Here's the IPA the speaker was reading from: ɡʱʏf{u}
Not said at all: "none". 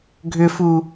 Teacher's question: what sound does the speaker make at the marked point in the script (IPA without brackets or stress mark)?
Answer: u